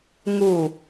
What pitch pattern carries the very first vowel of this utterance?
low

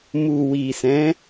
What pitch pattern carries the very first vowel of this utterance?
low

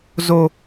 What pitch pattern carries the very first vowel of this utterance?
high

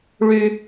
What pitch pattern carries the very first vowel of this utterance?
low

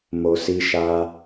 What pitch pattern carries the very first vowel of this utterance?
low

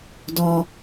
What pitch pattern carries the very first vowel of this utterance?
low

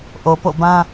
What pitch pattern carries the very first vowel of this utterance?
low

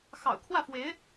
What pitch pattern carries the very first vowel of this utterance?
low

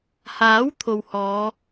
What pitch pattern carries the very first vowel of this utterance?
rising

